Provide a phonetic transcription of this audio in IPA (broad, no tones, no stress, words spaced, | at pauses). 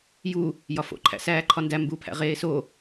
ju | jɒfo̰ ǃʰæ̰sæːǃʰɒndæ mbu pʰæ̰ʁeːso